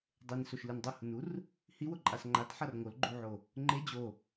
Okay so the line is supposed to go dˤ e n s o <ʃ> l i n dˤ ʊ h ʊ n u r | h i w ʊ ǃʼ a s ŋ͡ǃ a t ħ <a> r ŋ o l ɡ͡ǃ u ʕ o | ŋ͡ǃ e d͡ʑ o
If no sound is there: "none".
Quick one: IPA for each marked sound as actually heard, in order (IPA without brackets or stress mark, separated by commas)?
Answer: ʃ, a